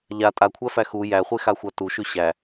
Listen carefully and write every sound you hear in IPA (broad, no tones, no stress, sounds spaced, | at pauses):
ʎ a tʼ a kʷʰ æ f æ x u j æ χʷ e x a xʷ a t u ʃ ʉ ɕ æ